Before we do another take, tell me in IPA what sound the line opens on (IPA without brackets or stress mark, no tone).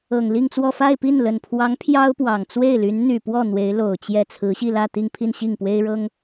ɤ